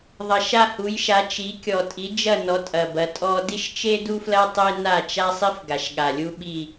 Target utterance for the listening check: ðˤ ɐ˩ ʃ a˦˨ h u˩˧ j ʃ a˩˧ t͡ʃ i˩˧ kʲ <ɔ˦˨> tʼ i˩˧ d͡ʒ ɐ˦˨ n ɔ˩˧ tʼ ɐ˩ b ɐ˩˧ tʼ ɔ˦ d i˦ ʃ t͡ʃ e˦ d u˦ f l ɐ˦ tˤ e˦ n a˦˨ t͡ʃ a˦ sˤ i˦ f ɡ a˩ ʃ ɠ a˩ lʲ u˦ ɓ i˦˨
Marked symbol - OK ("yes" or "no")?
no